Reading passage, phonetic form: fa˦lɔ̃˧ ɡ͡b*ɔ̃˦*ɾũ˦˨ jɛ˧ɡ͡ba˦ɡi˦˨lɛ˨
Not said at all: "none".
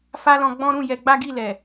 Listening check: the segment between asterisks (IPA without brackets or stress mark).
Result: ɔ̃˦